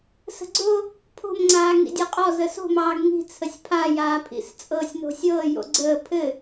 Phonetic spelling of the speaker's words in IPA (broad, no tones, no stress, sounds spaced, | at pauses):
s ə̤ ɡ͡ǀ o | pʰ o̤ m ŋ͡ǀ aː ŋ ḭ dʲ ɤ qʼ ɔ z ə s o̤ m ɑː ɡ ŋ i̤ t͡sʰ ə sʲ pʰ a j aː pʰ ḭ s t͡sʼ ɤː sʲ n o̤ sʲ ɤː j o̰ ɡ͡ǀ əː pʰ ɘ